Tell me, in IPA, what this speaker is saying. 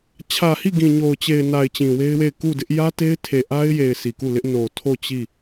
t͡ɕʰ ä˨ h i˦˨ ɡ ĩ˨ ɲ o˨ ʊ̯ t͡ɕ e˨ ɪ̯ n a˨ ɪ̯ t͡ɕ ĩ˨ w e˦ ɪ̯ w e˦˨ ɪ̯ k u˦˨ d ɪ˦ ʔ j ä˦ t e˦ ɪ̯ tʰ e˨ ʔ a˦ ɪ̯ j e˨ ɪ̯ sʰ i˨ k u˦˨ l ɪ˦ ʔ n o˨ tʰ o˦˨ t͡ɕ i˦˨

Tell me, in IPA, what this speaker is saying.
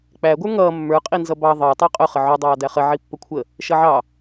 k͡p æ ɡʷ ə˞ ŋ ʌː mː ə˞ qʼ i n z ʌ b ɑ ðˤ əː tˤ ɑ qʼ ʊ χ ə ʕ ʊ dˤ ɑː d æ χ ə ʕ i pː ə kʷʰ ə | ʃ ʌ ʕ ɑ

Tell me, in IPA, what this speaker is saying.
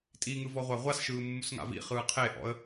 tʼ i ŋ ɯ v ɔ ʁʷ a ʁʷ a s ʃ ɯː mː u s ŋ a̰ v ḭ χ ɯː qʰ e ʔ ɔ̰ ə̯

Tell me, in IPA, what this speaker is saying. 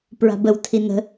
p ɹ a̤ b ə w tʰ i n ə̤

